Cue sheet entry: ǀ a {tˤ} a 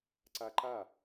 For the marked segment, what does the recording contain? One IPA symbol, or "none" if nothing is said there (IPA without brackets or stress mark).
ǃ